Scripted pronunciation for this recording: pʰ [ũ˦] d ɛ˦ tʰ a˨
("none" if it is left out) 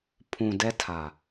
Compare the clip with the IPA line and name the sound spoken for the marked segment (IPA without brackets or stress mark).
ũ˨